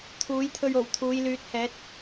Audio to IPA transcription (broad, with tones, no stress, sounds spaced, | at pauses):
t̪ʰ uː˨˥ j t̪ʰ ɵ˧ ɥ o˨˩ w t̪ʰ uː˨˧ j l yː˨˥ t̚ h ɛː˨˥ t̚